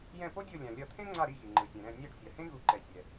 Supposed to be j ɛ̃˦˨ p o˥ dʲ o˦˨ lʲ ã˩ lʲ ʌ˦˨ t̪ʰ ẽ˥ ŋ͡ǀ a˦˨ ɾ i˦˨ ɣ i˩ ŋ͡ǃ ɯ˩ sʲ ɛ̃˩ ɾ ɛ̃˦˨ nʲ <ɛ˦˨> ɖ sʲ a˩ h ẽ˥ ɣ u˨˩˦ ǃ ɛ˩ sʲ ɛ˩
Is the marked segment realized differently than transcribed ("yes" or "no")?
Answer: no